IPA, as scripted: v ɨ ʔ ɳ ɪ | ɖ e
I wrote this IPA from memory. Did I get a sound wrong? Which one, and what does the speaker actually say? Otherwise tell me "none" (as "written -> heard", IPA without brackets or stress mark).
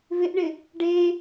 ɨ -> ɪ